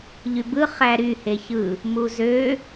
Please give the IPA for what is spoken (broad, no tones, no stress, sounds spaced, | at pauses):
ʎ y b ɯ χ æ ɾ y h e ç ɯ | m u z ø